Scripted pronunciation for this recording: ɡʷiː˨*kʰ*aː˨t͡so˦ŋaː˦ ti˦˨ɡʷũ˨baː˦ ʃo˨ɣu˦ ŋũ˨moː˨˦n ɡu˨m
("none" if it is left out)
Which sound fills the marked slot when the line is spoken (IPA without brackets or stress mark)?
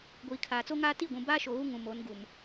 kʰ